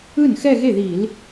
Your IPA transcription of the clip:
ɯ˥˩ n x ɛ˥˧ ɣ e˥˩ ð i˧˩˧ l

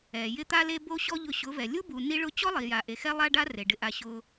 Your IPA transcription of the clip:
ɛ˨ j ɪ˧ t̪ a˧ l e˧ b o˧ ɕ ɔ˦ ʎ ʊ˧ ɕ ʊ˨˦ v ɛ˨ lʲ u˦ b u˨ n i˦ ɭ ʊ˦ t͡ɕ ɔ˦ lˠ i˨ j a˨ ʔ e˨ x ɛ˦ lˠ a˦ ɖ a˦ r e˨ ɖ ɪ˧ ʔ a˧ ɕ ʊ˧

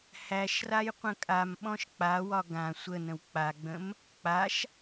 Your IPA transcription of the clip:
h æ ʃ r a j qʷ ə̃ kʼ a m ɓ ɔ̃ ʃ k͡p a w ɒ ɡ ã sʷ ə n ə̃ w k͡p a ɡ͡b ə̃ m | k͡p a ʃ

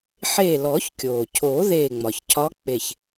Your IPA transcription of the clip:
ħ eː˧˩ l ɔː˨˩˦ ç kʲ oː˩ cʰ oː˨˩˦ ð eː˧˩ ŋ͡m ɒ˩ ç cʰ ɒ˧˥ k͡p e˧˩ ç

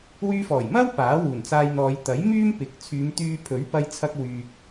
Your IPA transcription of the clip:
w yː˧ f ɔː˨˩ j m ɐ˥ w p aː˨˥ w uː˨˩ n t͡s aː˧ j n̪ ɔː˨˧ j t̪ ɐ˨˥ j m yː˥ m p ɪ˨˥ k̚ t͡sʰ yː˨˧ m t̪ yː˧ pʰ ɵ˨˥ ɥ p ɐ˧ j t͡sʰ ɐ˧ k̚ w yː˨ k̚

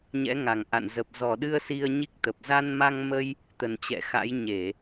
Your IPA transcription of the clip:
ɲ ɛ̰˧˥ ŋ a˨˩ ŋ ʔ a̰˧˨ n z ə˨˩ p̚ z ɔ˧˩ ɗ ɨ˧ ə̯ s i˧ ə̯ ɲ i˦˥ k̚ t̪ ə˨˩ p̚ z a˧ n m a˧ ŋ m ə˧ j | t̪ ə˨˩ n t͡ɕ ɛ̰˧˨ x a̰˧˥ j ɲ e˧˩˨

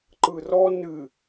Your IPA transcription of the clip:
ǃ ɯ r ɔ n ɨ

